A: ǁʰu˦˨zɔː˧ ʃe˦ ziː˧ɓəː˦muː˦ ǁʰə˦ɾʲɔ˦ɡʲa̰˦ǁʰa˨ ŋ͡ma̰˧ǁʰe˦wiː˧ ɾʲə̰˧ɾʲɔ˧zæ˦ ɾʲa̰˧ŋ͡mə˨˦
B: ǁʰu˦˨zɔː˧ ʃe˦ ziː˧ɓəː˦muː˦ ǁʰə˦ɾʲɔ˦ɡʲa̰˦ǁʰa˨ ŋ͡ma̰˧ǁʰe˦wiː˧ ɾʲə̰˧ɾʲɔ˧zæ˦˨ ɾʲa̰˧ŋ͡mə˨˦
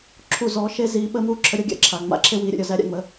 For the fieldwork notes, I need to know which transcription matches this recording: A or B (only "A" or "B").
A